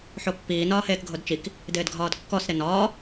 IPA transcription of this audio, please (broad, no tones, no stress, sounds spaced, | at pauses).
ħ o pː iː n ɒː h eː k ɡʱ o d t͡ʃ i k | d ɪː d ɡʱ ɒː d kː ɔ s ɾ ɪ n ɒː